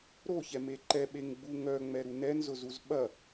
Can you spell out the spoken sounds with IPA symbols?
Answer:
ɾ o ç ɛ m e ǃ ɛ ɓ e ŋ ɡ͡b u ŋ œ ŋ͡m ɛ ɾ u n ɛ n z ʊ z u z ɓ ɐ

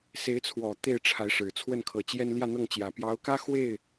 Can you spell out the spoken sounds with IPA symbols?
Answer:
s e˧˥ ɪ̯ t͡sʰ w ɔ˨˩ t̪ e˥˩ ɪ̯ ʈ͡ʂʰ a˧˥ ɪ̯ ʂ ɻ̩˨˩ t͡sʰ w ə˥˩ n kʰ ɤ˨˩ t͡ɕ j ɛ˥ n l j ä˥˧ n̪ ɤ˥˩ ŋ t͡ɕ j ä˨˩ p j ɑ˧˥ ʊ̯ k ä˥ x w e˥˩ ɪ̯

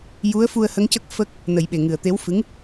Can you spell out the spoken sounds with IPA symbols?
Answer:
j u˧˥ ə̯ f u˧ ə̯ h ə˧˥ ŋ c ə˦˥ k̚ f ə˦˥ k̚ | n ə˨˩˦ j ɓ e˨˩ ŋ ɨ˨˩ ə̯ t̪ e˧˥ w f ɨ˧˥ ŋ

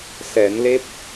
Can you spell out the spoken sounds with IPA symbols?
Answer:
s ɛ˨˩˦ n l e˦˥ p̚

